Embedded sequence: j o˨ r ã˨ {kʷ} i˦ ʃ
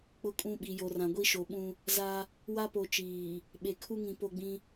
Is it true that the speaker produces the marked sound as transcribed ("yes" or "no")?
no